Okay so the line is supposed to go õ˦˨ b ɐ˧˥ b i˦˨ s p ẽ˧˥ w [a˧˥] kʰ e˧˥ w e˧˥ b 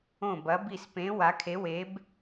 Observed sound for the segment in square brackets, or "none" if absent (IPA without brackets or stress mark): a˧˥